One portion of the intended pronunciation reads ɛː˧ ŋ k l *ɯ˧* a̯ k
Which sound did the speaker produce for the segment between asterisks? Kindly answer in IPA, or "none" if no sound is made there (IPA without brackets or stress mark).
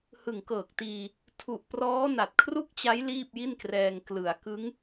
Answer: ɯ˩˦